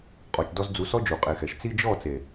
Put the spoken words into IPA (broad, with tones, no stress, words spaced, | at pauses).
qʼɔ˨t͡ʃdɔ˧z d͡zu˨˦sɔ˦d͡ʒu˨ qʼe˨xɛ˨ʃ t͡si˧d͡ʒɔ˦˨t͡se˨